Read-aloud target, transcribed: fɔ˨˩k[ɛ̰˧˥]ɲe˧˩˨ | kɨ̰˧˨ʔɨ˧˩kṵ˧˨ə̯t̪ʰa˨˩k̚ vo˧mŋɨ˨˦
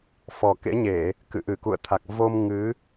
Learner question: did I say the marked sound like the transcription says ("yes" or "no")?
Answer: no